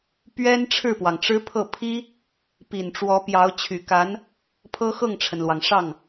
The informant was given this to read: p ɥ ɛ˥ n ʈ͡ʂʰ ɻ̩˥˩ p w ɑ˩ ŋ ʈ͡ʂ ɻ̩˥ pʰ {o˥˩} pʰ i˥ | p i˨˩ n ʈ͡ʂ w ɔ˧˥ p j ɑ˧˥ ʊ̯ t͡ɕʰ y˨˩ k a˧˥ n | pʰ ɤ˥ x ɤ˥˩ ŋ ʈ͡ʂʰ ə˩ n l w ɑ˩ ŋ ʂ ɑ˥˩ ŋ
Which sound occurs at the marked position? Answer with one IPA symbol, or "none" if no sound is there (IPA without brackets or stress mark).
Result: ɤ˥˩